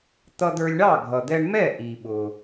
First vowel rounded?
no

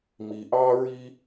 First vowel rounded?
no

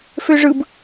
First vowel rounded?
yes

